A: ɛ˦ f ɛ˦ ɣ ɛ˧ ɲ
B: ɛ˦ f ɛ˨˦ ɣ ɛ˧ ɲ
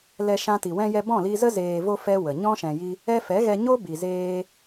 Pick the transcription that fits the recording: B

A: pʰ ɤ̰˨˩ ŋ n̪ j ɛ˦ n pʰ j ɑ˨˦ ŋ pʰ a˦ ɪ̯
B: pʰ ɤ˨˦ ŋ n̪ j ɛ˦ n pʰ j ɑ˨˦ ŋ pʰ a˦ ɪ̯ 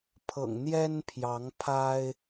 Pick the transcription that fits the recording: A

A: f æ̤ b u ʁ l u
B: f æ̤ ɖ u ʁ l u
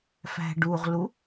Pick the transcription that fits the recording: B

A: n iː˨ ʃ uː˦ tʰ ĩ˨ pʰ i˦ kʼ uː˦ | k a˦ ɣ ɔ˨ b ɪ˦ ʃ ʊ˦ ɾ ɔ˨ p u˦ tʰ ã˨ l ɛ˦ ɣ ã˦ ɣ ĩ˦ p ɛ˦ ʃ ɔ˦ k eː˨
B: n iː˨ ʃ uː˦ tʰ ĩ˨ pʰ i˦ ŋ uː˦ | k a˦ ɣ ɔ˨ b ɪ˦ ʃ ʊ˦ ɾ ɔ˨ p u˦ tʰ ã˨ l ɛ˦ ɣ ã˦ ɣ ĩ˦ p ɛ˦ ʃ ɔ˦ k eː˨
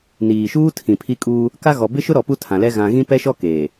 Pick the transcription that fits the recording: A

